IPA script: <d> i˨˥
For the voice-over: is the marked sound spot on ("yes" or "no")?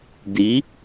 yes